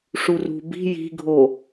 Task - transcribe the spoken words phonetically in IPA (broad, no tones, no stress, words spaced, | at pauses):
ʂurṳ bi̤ ji̤ɡʱo